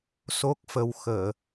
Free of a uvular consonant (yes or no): yes